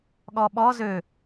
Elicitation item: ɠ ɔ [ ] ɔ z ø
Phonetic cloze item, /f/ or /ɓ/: ɓ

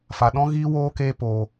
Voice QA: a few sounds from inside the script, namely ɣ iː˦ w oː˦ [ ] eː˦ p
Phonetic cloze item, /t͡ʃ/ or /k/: k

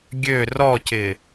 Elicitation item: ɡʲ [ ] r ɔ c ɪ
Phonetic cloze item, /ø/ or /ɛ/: ø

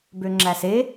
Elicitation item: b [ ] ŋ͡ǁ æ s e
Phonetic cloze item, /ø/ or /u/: ø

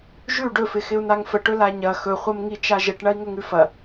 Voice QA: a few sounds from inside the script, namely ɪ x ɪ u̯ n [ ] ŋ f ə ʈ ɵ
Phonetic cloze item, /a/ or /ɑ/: a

